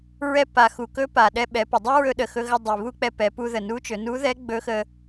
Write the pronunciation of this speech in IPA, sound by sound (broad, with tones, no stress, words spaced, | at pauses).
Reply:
ɹɛ˧pa˩ xu˩kɵ˧˥ pa˩ɗɛ˧ɓɛ˩˧pə˩ dˤə˥ɹɵ˧ɗə˩ xɵ˧ɣə˧ dˤi˩ βu˥k͡pɛ˧pɛ˩˧ pu˧ðə˩ nu˧˥t͡ʃɵ˩˧ nu˧˥ðɛ˧˥ ɡ͡bɵ˧˥xə˧